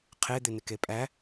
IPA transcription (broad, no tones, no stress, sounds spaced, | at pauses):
qʰ e d̪ ɪ n ɪ k e pʼ æ